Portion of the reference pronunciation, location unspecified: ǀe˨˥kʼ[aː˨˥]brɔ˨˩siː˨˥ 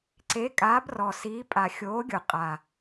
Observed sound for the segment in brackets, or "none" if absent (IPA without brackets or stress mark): aː˨˥